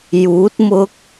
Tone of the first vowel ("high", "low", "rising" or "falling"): rising